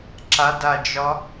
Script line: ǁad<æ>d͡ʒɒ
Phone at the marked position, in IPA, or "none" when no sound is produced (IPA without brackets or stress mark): a